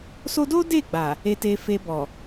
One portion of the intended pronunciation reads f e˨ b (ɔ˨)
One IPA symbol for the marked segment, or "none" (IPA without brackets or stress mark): ɔ˨